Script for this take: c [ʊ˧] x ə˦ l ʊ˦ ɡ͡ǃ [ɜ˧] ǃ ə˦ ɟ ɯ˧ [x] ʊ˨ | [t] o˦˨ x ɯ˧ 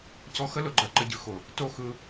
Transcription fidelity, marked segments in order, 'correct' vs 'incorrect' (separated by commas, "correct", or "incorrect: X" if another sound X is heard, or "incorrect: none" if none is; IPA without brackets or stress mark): incorrect: ɔ˧, correct, correct, correct